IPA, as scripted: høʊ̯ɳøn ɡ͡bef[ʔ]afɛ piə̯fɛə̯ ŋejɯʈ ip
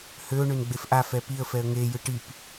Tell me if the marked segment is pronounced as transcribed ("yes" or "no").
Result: yes